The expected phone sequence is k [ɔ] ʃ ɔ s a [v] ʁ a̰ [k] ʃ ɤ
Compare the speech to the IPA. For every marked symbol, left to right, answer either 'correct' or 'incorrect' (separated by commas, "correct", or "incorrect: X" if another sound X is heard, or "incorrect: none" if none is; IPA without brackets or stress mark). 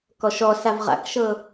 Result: correct, correct, correct